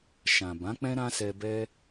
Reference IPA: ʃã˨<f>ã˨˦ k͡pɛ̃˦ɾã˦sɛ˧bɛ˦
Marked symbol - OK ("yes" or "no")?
no